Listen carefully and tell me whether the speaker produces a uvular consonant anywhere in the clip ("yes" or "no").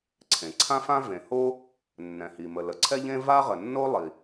yes